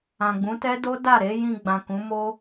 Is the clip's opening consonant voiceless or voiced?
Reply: voiced